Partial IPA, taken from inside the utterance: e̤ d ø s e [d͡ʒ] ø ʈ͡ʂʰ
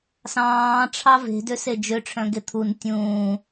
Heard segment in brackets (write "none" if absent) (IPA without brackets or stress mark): d͡ʒ